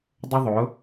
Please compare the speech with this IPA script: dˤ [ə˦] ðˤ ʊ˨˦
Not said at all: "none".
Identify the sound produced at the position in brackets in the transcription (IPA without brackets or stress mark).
ə˦